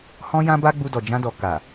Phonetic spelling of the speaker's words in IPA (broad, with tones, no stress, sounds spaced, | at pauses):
h ɔ̃˦ j ã˦ b a˦ ɡ͡b u˧ d ɔ˨ d͡ʒ ã˧ d ɔ˨ k a˨